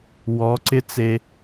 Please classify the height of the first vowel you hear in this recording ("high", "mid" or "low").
mid